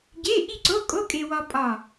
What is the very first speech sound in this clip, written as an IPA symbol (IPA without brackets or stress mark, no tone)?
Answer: ɟ